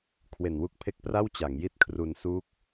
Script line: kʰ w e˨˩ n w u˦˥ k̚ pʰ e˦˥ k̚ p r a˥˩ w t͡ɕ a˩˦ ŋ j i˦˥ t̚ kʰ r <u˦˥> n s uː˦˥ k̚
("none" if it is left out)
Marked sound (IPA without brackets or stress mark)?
u˧